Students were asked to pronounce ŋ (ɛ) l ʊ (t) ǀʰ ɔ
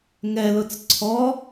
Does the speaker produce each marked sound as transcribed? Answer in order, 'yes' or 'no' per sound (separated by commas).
yes, no